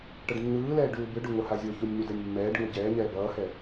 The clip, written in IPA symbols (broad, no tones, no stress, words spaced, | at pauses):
ʈʌɖnːɯːlɛː ɖuːbɯɖo ŋohazʲoçunʲ ɲudɛnʲmːɛːɖŋo ɟɛːɲɛː bʌːhɛ